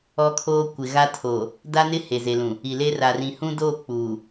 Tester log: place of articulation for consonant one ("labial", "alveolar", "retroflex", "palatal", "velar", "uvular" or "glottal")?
velar